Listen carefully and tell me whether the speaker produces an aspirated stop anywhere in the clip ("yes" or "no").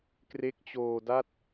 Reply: no